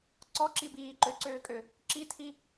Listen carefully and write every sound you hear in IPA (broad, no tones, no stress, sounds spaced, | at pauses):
ǀ ɔ ǁ i b iː ǃ ø ǀ øː kʼ ø | ǁ i tʰ i